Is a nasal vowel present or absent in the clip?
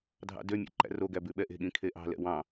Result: present